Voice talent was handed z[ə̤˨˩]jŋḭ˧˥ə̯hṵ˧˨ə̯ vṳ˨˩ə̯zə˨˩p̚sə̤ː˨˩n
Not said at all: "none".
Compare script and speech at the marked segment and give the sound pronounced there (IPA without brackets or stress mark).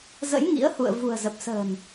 ə̰˧˥